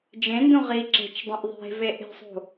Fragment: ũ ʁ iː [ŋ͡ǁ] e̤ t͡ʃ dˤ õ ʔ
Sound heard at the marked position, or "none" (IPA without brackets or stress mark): ǁ